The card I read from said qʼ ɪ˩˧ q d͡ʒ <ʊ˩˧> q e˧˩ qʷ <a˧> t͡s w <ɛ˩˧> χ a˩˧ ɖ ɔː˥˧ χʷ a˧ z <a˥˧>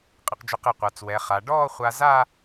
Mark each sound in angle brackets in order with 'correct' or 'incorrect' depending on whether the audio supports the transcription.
incorrect, incorrect, correct, correct

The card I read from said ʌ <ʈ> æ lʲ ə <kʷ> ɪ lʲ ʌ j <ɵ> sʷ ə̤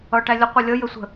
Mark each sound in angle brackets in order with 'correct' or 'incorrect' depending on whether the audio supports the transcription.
correct, incorrect, incorrect

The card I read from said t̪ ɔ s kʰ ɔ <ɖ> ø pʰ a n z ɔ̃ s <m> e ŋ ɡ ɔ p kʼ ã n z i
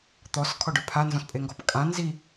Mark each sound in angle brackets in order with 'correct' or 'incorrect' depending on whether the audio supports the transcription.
correct, incorrect

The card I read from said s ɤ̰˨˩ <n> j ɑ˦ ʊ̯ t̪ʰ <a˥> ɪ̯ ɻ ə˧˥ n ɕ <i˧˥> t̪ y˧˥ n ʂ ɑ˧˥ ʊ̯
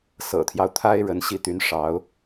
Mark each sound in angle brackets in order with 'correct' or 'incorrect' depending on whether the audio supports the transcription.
incorrect, correct, incorrect

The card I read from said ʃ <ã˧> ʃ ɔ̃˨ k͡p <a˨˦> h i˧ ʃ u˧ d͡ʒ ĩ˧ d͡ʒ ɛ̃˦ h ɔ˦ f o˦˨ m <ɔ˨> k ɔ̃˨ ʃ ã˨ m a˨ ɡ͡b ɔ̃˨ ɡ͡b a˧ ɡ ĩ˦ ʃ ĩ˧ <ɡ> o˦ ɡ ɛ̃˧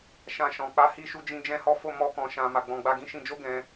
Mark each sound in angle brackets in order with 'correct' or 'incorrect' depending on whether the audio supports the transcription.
correct, correct, incorrect, incorrect

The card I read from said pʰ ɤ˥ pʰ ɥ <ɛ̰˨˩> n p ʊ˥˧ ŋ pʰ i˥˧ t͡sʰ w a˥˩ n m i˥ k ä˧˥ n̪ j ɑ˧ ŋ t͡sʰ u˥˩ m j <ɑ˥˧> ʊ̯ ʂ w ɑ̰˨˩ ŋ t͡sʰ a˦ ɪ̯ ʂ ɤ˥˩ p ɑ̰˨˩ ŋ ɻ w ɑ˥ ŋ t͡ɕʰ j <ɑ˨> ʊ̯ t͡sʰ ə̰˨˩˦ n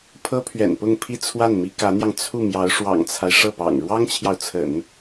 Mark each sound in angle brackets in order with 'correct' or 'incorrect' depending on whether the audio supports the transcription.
correct, incorrect, correct

